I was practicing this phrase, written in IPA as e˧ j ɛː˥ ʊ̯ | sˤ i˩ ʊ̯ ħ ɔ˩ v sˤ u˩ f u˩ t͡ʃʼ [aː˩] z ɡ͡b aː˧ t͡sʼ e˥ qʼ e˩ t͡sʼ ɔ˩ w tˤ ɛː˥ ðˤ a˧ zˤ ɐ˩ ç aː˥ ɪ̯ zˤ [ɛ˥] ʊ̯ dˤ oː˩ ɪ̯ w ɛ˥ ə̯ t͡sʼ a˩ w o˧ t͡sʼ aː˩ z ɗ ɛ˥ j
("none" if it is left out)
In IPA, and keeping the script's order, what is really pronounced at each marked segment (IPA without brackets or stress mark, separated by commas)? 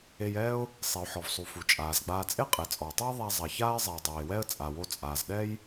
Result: aː˩, ɛ˩